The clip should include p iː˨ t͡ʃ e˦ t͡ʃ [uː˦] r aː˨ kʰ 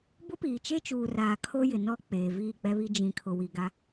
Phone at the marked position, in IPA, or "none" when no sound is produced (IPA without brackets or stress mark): uː˨